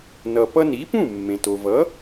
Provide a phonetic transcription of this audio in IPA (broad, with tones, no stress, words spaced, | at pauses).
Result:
nʌ˩ pʌ˧ni˩˥pũ˥˩ mːẽ˩to˩vʌ˩˥